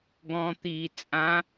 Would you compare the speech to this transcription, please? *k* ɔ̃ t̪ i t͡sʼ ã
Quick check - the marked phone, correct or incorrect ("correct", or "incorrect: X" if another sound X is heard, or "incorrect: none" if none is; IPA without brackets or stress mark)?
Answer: incorrect: ɡ